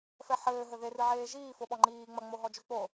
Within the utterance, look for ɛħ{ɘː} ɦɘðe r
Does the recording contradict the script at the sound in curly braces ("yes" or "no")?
no